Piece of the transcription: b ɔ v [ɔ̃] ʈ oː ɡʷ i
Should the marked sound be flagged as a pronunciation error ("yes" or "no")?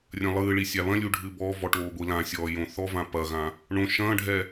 yes